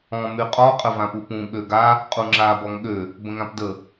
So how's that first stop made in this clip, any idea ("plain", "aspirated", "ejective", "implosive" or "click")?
ejective